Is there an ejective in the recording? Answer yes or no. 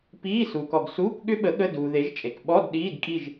yes